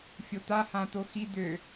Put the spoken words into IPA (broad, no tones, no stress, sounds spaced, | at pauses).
fʲ o t̪ a h ã t̪ o x i d̪ ø